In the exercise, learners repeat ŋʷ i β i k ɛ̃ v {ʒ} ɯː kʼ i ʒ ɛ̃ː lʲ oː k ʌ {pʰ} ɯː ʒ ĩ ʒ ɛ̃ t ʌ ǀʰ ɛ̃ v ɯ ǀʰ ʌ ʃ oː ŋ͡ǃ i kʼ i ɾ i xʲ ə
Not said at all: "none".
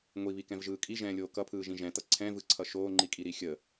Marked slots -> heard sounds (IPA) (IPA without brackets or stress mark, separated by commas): ʒ, pʰ